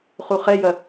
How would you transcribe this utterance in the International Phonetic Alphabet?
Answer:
χuχɛjɐ

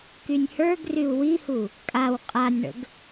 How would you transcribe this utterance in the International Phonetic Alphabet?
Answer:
kynʲhə˞ɡryu̯ wihu | kʼaw qʼanʲɳə̰ɡ

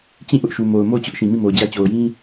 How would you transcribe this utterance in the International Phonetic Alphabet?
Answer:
t͡ɕĩ˦˨ ʔʊ˦ʔʃu˨mo˨ʊ̯ mo˦˨ʊ̯t͡ɕʊ˦ʔ ʃĩ˨mĩ˦˨mo˨ʊ̯d͡ʑä˦ t͡ɕo˨ʊ̯jĩ˦

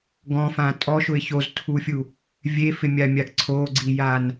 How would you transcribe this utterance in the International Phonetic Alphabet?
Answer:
ɡɔ̃fã tʼɔʃʊɪ̯ çoztʰufʲu | vʲefɪmʲamʲaɡ ǀʰoɡ͡ǀijan

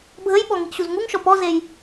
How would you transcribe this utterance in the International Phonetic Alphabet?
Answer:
bʱəjɓɔ ŋiʔɕuzŋuŋʃɔ pɔzej

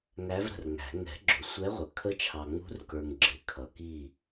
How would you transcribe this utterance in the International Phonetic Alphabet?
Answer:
ŋæ˧˥vɾə̤˨rŋæ̤˨˩˦ ŋɛ̤˨˩˦ ɡ͡ǁʊ˨sʷɛ˧˥ʁʷə˨ kʰə˧˥t͡ʃʰɑ˨ŋ͡mṳ˧˥rkə˞˨ŋ ɡ͡ǁɪ˨˩˦kʰʌ˨ki˦˨

